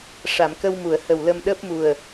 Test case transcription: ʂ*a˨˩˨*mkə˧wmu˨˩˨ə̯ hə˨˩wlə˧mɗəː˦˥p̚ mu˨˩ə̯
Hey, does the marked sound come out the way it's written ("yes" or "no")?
yes